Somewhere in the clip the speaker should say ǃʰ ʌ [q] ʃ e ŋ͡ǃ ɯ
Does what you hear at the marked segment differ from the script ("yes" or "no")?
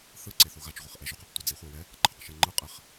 no